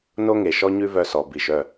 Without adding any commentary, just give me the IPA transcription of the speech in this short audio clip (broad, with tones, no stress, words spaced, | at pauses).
no˦ŋe˨ʃɔ˦ ɲʉ˦vœ˧sɔ˨ bi˨ʃœ˦˨